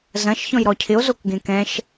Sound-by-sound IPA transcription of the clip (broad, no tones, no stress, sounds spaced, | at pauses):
z ɐ̃ ʃ ç ɔ̃ j ɾ ɔ cʰ ɪ o̯ z o k ɡ ẽ k ɛ̃ ʃ